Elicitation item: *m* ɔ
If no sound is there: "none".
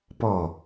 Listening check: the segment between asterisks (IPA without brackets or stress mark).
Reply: p